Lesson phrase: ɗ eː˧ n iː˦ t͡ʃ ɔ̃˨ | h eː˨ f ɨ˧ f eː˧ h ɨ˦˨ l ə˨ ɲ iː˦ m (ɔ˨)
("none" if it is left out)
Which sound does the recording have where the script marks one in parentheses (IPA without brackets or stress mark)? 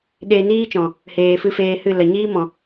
ɔ̃˨